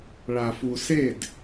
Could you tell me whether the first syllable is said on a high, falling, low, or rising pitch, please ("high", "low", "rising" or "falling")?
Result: low